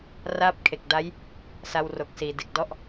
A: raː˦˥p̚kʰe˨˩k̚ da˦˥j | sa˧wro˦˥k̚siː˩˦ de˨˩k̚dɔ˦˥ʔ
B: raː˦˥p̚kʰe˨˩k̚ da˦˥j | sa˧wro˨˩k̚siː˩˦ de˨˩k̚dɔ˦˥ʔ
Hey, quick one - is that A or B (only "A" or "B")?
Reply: B